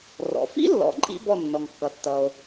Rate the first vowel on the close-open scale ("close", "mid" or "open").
mid